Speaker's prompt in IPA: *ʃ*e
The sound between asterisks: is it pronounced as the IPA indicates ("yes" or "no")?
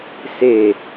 no